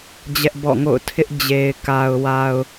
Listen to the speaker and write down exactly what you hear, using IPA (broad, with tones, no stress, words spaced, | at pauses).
d͡ʑɛ˦ʔbɔ̰˦˨ŋo̰˦˨ʊ̯ tʰɪ˦ʔd͡ʑe˨ɪ̯ ka˨ʊ̯wa˨ʊ̯